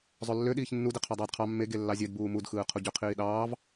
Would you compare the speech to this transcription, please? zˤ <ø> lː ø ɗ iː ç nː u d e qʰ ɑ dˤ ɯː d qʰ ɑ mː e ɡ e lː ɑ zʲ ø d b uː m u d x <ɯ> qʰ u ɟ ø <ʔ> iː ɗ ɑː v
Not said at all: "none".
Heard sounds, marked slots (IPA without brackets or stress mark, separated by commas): ø, ɯː, qʰ